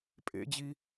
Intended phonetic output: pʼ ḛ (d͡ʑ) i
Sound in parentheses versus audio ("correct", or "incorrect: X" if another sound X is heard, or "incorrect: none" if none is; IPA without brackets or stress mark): correct